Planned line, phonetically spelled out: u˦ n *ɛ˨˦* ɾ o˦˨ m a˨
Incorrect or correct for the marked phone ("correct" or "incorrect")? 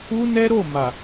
incorrect